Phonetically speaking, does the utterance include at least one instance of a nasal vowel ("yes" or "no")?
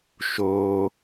no